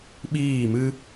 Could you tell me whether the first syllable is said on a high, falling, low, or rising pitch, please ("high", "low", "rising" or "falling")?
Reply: falling